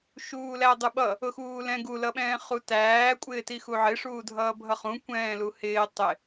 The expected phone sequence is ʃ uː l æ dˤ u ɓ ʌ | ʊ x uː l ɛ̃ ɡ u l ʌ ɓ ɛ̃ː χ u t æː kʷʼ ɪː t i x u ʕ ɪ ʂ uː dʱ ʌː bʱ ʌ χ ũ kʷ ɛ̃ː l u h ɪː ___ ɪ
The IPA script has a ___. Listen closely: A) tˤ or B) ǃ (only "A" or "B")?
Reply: A